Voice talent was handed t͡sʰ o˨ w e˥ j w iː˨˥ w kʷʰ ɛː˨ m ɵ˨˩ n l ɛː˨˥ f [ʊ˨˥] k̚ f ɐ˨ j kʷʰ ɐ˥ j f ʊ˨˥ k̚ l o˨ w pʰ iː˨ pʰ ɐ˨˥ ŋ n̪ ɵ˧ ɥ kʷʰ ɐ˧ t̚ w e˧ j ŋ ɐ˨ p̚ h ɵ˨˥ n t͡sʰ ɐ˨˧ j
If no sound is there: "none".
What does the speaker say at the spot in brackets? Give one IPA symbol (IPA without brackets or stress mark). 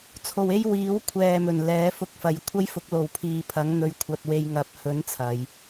ʊ˧